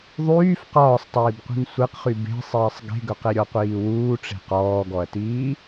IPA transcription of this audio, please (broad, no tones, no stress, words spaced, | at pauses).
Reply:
ðˤyːf qɒːsˤtˤiːbqʷi̤n sʷeqχy be̤sˤiːsˤ ɡe̤ɡɵqe ɾʲɔqʷiːwuːʈ͡ʂe̤ qɔːɡɔɐ̯tiː